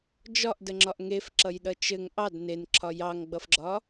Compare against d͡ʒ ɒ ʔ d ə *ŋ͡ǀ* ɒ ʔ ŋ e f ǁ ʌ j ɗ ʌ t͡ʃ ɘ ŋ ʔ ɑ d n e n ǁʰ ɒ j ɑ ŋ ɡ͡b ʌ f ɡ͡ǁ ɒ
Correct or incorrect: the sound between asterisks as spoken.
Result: incorrect: ŋ͡ǁ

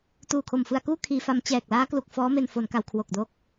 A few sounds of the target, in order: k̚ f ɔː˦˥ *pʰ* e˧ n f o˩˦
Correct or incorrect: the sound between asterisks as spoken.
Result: incorrect: m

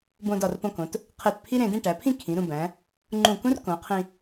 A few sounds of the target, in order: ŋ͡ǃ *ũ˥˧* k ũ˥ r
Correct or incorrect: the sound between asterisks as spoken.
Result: incorrect: ũ˧˩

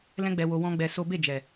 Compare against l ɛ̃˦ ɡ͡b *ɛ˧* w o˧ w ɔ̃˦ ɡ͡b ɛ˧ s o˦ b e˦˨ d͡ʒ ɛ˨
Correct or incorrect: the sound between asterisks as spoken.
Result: correct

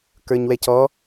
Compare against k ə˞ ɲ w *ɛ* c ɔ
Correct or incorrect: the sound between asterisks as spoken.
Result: correct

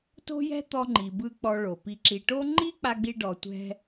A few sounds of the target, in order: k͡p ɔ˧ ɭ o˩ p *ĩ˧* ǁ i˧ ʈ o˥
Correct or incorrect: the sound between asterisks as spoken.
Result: incorrect: i˧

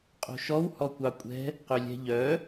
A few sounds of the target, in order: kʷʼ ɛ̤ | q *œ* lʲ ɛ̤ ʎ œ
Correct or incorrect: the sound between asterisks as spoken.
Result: incorrect: ø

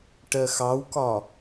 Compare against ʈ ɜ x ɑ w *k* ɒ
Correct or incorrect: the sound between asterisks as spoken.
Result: correct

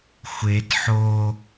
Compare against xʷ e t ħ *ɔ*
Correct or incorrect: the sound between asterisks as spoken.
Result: incorrect: o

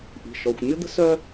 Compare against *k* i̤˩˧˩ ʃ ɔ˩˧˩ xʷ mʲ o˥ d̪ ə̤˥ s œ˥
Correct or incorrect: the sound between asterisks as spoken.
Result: incorrect: ʔ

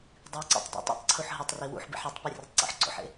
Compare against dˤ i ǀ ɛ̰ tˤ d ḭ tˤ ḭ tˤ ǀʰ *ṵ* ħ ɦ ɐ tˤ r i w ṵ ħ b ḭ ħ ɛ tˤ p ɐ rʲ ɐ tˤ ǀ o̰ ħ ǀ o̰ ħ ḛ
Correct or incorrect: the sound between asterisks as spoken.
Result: incorrect: u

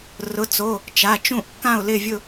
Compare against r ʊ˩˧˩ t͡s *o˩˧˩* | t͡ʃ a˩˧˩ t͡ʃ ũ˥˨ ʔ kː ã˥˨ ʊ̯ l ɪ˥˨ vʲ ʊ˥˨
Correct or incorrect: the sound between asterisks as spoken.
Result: correct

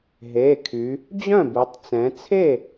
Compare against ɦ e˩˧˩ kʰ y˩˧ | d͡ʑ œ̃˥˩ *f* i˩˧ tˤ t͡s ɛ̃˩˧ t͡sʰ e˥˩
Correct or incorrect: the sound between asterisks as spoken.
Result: incorrect: b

